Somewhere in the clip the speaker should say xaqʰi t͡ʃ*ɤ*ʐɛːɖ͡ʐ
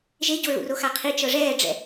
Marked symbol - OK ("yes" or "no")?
yes